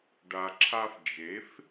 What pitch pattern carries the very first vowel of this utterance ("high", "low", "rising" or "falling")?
low